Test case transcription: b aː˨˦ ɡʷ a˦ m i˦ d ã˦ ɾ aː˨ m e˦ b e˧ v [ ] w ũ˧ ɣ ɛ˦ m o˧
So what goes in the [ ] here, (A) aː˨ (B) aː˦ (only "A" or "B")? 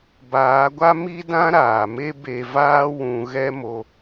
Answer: B